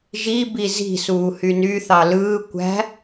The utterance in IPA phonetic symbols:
ʒ i b i z i̤ s uː h y n y θ ɑ l ɯː kʷ æ̤

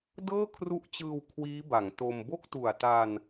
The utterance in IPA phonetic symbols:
d ɤː˥˩ kʰ r u˦˥ ʔ t͡ɕ ɯː˧ w kʰ w iː˦˥ b a˩˦ ŋ t o˧ m b o˥˩ k̚ t u˨˩ a̯ t a˧ n

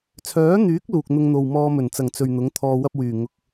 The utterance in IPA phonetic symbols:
t͡sʰ œː˨˥ n̪ yː˨˥ k̚ l uː˨ k̚ n̪ ʊ˧ ŋ n̪ o˨ w m ɔː˧ m ɵ˨˩ n t͡s ɐ˨˩ ŋ t͡s ɵ˨ ɥ n̪ ʊ˨˥ ŋ t̪ʰ ɔː˧ w ɐ˥ p̚ w yː˨˩ ŋ ʊ˧ k̚

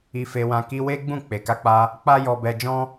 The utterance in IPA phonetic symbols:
i˧ f e˧ w ã˧ k i˧ w e˦ ɡ͡b ũ˦˨ k͡p e˨ k a˧ k͡p a˧ | k͡p a˦ j ɔ˧ b ɛ˧ d͡ʒ ɔ̃˧

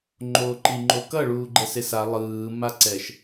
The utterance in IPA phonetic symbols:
ŋ͡ǃ oː ǃ i ŋ͡ǃ o k ʌ ɭ uː ɡ͡ǃ ɛ s e s a lˠ ɯː m a ǀ ɛ ʃ

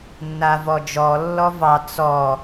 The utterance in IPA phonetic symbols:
nː a v ɔ d͡ʒ ɔ lː ɔ v ɑ t͡s ɔ

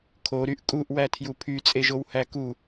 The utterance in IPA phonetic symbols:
kʰ o ɾ y ʔ kʼ u ʔ w æ tʰ j u pʰ y t͡sʼ e ʒ o w h æ k u

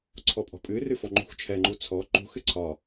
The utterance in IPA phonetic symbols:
ǀʰ ɔ pʼ ɔ̤ pʼ ɨ r ɨ f ɔ ŋ͡ǃ ṳ x t͡ʃʰ ɛ ŋ͡ǃ u t͡sʰ ɔ ǃ ṳ x ɨ ǀʰ ɒ

